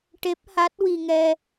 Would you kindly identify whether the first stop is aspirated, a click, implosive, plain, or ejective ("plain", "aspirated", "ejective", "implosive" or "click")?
plain